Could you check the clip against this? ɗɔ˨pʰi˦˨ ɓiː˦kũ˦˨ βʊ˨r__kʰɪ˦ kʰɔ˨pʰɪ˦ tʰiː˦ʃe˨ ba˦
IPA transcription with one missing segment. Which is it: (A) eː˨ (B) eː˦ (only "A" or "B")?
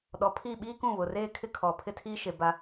B